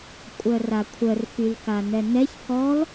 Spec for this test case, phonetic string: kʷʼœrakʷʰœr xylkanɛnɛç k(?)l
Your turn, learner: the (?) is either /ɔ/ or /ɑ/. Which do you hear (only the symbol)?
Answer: ɔ